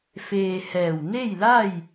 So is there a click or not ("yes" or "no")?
no